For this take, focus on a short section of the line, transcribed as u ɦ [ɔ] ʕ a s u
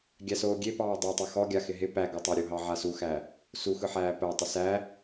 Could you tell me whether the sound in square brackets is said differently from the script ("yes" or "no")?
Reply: yes